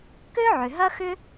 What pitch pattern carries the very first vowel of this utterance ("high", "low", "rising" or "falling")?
high